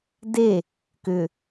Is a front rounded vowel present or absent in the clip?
present